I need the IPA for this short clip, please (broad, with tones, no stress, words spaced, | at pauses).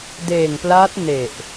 deː˨˩ŋplaː˦˥t̚ ne˨˩ʔ